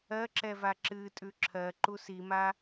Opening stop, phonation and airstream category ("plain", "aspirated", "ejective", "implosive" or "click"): click